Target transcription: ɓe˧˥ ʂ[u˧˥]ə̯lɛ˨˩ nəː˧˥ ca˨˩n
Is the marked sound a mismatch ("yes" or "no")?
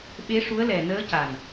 no